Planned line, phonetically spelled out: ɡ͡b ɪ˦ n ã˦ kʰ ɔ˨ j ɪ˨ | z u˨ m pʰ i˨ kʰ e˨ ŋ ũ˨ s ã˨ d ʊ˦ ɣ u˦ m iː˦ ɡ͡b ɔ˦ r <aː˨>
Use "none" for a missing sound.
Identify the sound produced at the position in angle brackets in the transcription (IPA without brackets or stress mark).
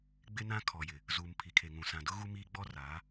aː˨˦